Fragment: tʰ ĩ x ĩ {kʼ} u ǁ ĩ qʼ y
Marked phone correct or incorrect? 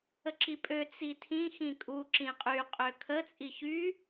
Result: correct